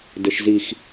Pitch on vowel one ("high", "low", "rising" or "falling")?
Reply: low